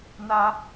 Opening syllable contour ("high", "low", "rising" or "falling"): high